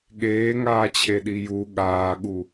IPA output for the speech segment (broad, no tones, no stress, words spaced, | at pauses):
ɠeːŋaːt͡ɕʰe ɗiju ɠaːɠu